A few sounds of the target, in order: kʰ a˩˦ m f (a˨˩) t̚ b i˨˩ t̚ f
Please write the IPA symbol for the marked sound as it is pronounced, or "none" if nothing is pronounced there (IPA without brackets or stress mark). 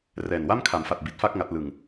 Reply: a˨˩